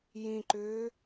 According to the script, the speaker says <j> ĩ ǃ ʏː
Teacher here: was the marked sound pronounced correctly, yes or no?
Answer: yes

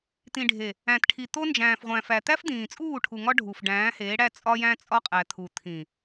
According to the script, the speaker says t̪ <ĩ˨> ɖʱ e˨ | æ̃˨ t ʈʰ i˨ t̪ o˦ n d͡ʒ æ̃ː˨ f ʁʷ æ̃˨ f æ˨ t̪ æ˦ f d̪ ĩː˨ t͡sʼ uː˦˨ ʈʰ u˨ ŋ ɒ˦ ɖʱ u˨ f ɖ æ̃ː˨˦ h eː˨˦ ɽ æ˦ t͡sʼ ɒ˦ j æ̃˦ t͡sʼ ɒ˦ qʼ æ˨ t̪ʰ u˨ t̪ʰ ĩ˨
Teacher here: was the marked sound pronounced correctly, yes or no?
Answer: yes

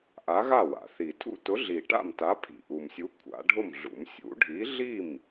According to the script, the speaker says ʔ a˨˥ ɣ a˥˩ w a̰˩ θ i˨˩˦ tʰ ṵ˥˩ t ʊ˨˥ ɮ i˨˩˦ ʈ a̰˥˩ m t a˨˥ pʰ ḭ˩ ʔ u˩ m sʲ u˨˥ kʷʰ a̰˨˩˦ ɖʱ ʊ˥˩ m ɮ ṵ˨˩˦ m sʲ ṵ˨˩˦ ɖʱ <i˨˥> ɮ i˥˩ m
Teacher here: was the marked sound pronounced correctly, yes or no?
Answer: yes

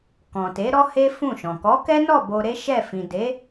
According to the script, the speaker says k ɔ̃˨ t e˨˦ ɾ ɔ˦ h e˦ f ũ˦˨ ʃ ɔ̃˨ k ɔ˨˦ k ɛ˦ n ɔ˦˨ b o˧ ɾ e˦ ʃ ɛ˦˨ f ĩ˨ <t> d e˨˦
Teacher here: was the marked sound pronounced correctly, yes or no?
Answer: no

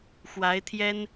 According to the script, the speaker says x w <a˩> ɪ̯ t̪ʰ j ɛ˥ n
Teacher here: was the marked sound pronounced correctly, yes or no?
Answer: no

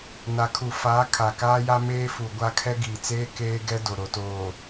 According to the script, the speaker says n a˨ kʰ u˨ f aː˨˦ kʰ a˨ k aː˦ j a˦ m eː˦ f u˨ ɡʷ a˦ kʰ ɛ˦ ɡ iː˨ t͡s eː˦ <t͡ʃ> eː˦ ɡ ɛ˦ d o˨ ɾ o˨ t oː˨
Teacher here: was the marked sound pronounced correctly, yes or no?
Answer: no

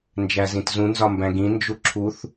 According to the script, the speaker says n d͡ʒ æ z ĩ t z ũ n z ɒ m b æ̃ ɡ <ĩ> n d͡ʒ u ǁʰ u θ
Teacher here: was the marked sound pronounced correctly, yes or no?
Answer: yes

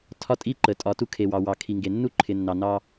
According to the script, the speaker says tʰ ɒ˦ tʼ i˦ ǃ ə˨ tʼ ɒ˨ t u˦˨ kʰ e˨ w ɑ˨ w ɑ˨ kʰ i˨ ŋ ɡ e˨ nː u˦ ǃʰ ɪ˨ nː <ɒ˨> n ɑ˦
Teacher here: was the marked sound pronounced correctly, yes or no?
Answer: no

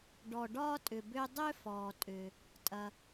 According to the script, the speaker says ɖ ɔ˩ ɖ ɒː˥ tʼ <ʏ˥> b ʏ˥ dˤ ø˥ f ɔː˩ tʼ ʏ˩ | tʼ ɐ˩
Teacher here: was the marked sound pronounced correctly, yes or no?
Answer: no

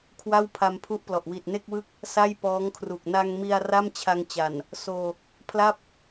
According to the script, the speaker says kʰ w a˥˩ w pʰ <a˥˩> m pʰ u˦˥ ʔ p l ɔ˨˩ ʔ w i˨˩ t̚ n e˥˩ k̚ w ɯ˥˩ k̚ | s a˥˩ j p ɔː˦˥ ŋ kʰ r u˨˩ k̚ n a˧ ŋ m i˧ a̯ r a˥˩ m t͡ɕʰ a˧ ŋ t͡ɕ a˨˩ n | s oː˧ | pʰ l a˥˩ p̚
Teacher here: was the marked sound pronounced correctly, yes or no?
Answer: no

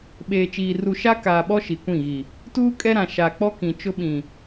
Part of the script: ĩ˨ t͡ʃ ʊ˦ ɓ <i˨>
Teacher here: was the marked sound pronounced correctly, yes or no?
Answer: no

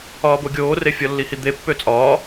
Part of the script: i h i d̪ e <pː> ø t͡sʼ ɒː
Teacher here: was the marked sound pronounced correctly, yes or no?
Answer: yes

